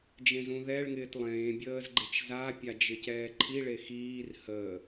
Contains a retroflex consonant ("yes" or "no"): yes